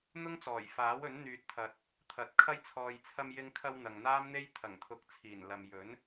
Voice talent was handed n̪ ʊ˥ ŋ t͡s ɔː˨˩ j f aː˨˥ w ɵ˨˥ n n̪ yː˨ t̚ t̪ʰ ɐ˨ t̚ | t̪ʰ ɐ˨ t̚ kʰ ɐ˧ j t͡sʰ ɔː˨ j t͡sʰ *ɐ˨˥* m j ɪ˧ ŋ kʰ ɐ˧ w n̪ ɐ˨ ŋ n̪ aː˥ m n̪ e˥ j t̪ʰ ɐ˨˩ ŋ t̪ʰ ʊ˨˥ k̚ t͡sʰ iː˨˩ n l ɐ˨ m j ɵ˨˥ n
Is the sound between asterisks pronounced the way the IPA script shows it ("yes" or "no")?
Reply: no